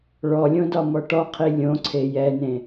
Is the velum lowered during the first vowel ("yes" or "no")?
no